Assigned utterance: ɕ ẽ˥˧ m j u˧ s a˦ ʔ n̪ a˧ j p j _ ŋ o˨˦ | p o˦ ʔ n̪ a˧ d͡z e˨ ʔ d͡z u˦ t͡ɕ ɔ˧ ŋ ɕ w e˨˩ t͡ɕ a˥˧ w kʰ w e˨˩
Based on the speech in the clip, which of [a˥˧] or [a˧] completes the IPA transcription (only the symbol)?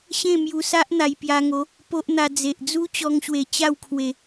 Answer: a˧